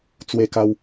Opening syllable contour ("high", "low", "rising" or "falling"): high